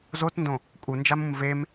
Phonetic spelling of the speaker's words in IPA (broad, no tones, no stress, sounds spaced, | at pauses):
z o t n d õ | kʼ u n d͡ʒ a m ũ m v e m